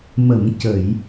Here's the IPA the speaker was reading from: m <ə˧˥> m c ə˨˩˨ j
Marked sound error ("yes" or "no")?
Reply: yes